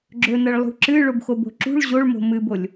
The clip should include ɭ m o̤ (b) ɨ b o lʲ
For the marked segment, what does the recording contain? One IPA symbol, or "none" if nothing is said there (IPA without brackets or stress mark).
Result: m